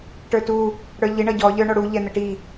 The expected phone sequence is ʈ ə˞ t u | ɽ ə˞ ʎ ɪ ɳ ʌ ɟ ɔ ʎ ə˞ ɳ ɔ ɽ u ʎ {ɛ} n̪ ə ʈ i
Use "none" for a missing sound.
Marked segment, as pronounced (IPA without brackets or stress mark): ɛ